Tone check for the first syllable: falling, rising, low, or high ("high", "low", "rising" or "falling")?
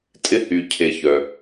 high